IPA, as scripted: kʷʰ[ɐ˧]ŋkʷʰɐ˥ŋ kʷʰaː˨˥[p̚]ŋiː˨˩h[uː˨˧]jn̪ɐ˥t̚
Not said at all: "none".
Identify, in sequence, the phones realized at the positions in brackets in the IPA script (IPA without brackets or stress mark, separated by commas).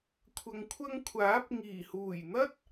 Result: ɐ˧, p̚, uː˨˩